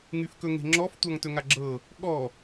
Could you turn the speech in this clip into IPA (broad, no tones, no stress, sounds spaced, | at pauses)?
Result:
ŋ y f k ɵ ŋ e̤ ŋ͡ǁ ɔ f tʷ a ŋ t ɵ ŋ a ɡ͡ǁ ɤ | ɠ ɔ